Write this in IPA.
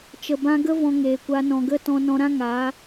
t͡ʃə˨bã˧ɡə˦ vɔ̃˧ŋeː˨kʷa˧ nɔ̃˨ɡə˦˨ tɔ̃˧nɔ̃˧ɾã˦ ŋaː˨˦

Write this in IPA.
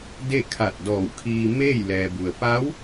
de˥˨kʰa˧˩t̚dɔː˧˩wkʰiː˧ meː˥˨jlɛː˩bu˩ə̯ pa˧˥w

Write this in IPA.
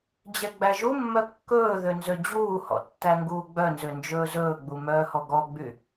d͡ʑɛɡ͡bæʒumːœ kːɵːðø nzød͡ʑuːhɔ̰ tːæŋɡuːɡ͡bœnzø nd͡ʒɵːzɵːɡ͡bu mœːhɔɡɔɡ͡by

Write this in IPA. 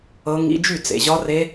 ɤ˦˥ŋḭ˦˥ d͡ʒy˥˩t͡sḛ˨ ʑɒ˦˥re˦˥

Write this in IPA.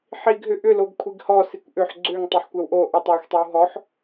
ħiɡ ɦʏʔʏloɡ kʷʰiɡhɔ sikʷʔʏħ ɡ͡ǀʏŋ tˤʏħkʷɛwʔo ʔutˤwyxʷtˤyw ɦɔħ

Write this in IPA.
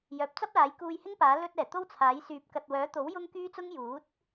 jœː˨˥p̚t͡sɐ˥p̚laː˨˥j kuː˧jhɪ˥ŋpaː˨˥ lɵ˧t̚ɛː˨˩ t̪o˥wt͡sʰaː˨˥j syː˨˥p̚kɐ˨t̚wœː˨˥t̪o˨˥w jʊ˥ŋkyː˥t͡sʊ˥ŋ juː˨˥t̚

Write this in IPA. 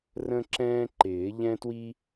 rə̃˥ǁɛ̃ː˥ ǃɪː˨˩˦ ʎɛ̃˥twi˥

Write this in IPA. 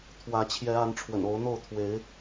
t̪ʰwä˨˦t͡ɕʰjɛ˨˦a˨˦n ʈ͡ʂʰwə̰˨˩no˨˦ʊ̯n̪o˥˨ʊ̯ t̪ʰwe˨˦ɪ̯

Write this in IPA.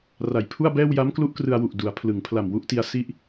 ra˨˩jpʰu˥˩a̯bɛː˥˩w ja˦˥mklu˦˥ʔkrɯ˧a̯wu˨˩ʔ du˩˦a̯pʰlɯ˩˦ŋ pʰla˨˩mwu˥˩ʔti˧a̯ si˦˥ʔ

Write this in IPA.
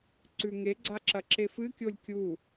ǀʉŋeɡ͡ǀa ǁɐǁefɨkʲolʲ kʲu

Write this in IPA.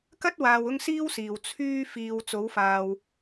kɐ˥t̚ waː˧wʊ˥ŋsiː˥wsiː˨w t͡sʰyː˧ fiː˨w t͡so˨˧wfaː˨w

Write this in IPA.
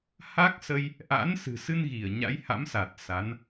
ha˦˥k̚sə˧j | ʔa̰˧˥nsɨ̤˨˩sɨ˧nɣi˧˩ə̯ ɲa̰˧˥jha̰˧˥msa˨˩t̚ sa˨˦n

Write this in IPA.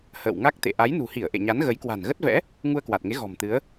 hə̰ː˧˨wŋa˦˥k̚t̪ḛ˧˨ ʔa˨˦jnṳ˨˩hi˧˩ə̯ ʔḛ˧˨ɲa˨˦n ɣə˨˦jkwa̤˨˩nɣə˦˥t̚vɛ̰˧˥ | ŋu˧ə̯kwa˨˩t̚ŋe˨˦ ɣɔ̤˨˩mt̪ɨ˨˦ə̯

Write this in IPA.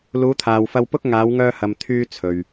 luː˨˧t̪ʰaː˨wfɐ˧wpʊ˥k̚ ŋaː˨˧wŋœː˧hɐ˨m t̪ʰyː˧ t͡sʰɵ˨ɥ

